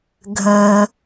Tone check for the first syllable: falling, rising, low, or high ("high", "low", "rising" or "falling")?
low